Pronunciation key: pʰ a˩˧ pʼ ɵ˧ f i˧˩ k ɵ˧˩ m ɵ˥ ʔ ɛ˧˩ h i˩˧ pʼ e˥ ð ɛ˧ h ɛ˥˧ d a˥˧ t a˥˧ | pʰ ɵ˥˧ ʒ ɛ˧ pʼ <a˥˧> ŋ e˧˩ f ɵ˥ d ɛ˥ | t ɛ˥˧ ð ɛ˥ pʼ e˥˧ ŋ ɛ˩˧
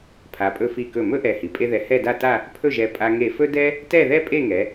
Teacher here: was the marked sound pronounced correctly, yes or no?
no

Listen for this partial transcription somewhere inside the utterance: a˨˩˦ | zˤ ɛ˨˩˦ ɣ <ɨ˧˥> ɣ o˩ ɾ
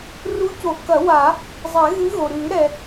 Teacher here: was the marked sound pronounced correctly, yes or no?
yes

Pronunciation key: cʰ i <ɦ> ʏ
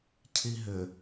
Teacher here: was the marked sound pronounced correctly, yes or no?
yes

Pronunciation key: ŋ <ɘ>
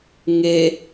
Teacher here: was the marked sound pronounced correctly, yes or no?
no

